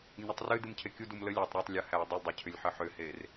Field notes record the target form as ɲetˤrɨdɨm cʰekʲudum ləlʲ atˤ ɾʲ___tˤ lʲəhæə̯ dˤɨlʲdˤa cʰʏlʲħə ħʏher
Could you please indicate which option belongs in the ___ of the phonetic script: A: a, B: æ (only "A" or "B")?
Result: B